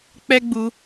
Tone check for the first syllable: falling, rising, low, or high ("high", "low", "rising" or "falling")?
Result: high